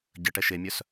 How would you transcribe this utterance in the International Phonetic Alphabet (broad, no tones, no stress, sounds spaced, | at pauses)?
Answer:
ɟ ə ʈ ɛ ʃ e mʲ œ s